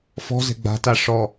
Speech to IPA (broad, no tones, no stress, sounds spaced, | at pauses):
f ɔ̤ z ɛ̤ ɡ͡b a̤ t a ʂ ɔ